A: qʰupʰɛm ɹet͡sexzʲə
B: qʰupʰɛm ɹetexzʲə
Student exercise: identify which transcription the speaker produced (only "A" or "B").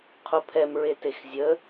B